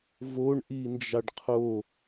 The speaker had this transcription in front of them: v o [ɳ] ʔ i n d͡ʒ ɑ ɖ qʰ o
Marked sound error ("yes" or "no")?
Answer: no